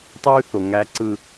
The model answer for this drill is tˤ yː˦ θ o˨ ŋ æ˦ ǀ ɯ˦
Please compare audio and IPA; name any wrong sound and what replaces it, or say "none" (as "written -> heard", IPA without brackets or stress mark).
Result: none